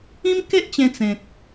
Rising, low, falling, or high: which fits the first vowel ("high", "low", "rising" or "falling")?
high